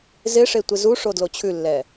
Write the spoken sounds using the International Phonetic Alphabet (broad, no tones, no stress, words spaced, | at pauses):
zɪʂe tʷɪzuʂo dlot͡ɕʰʉlːɛ